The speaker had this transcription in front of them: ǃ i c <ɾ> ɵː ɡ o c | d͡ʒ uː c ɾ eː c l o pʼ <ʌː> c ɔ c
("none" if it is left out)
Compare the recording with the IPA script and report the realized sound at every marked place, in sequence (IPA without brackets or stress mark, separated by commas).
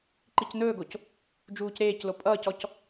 n̪, ʌː